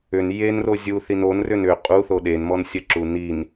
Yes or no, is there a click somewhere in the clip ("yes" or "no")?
yes